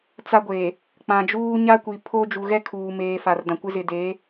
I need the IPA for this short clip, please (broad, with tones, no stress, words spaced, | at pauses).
t͡sa˦ɡʷeː˨ | k͡pã˨d͡ʒuː˦ ɲa˦ kʷi˨ pʰo˦ d͡ʒu˨ɣɛ˦kʰuː˨meː˨ fa˨rdã˨kʷɪ˦ zɪ˨deː˨˦